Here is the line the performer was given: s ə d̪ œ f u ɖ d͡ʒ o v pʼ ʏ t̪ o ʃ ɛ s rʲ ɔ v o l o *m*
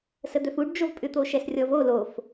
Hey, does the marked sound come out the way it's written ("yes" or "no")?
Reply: no